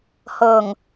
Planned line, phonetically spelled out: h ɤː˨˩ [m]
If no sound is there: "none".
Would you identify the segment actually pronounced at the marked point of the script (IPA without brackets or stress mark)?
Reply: ŋ